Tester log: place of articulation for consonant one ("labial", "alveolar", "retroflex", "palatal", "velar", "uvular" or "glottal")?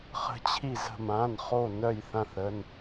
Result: uvular